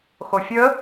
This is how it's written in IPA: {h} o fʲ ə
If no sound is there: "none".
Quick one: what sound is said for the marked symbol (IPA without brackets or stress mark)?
x